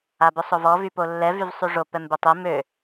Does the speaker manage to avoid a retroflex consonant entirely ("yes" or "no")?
no